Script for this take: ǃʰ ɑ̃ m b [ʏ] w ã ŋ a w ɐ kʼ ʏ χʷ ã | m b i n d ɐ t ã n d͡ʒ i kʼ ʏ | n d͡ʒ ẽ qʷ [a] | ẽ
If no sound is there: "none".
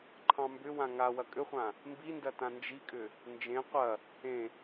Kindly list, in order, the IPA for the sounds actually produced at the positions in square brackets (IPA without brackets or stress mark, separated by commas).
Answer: ʏ, ɐ